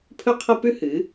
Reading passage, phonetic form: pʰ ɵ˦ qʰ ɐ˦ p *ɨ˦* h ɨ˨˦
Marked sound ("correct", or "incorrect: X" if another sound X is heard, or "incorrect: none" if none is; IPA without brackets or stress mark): incorrect: ʉ˦